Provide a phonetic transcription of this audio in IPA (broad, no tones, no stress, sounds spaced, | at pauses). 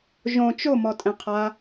ʒ õ t͡ʃ o m ɔ tʼ ɛ̃ qʰ a